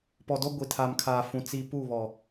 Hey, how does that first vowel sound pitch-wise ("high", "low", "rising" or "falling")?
low